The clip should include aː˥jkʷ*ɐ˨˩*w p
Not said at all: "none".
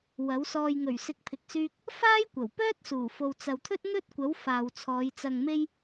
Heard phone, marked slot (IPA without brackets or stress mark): ɐ˨˩